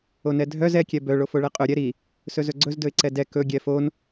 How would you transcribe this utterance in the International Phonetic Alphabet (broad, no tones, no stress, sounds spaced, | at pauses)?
o n ɛ dʱ œ z ɛ kʲ ɛ b œ ɭ o f o ɭ ɛ qʼ ɵ ɾʲ ɛ ɾ i | s ɵ z ɵ ɡ͡ǀ ɵ z d ɵ ɪ̯ ǀ ɛ d ɛ k ɵ ɡʲ ɛ f o n